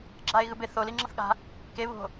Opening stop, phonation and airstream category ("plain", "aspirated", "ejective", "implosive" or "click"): click